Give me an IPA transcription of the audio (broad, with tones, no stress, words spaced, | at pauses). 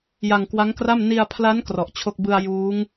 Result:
ja˧ŋkwa˦˥ŋkra˥˩m ni˧a̯pʰla˦˥n krɔ˨˩ʔt͡ɕʰo˥˩k̚ bɯ˧a̯ juː˦˥ŋ